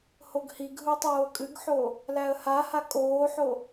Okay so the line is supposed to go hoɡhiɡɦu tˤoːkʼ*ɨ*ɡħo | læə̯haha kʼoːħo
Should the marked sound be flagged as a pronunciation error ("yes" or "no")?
no